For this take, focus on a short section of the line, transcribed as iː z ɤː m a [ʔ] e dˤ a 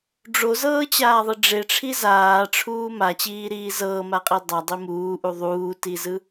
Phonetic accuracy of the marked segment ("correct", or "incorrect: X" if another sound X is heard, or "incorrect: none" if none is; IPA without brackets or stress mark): incorrect: qʼ